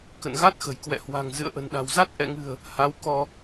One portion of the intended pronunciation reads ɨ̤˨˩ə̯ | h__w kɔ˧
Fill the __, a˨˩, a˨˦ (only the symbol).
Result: a˨˦